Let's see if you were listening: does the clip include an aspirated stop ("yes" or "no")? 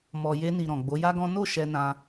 no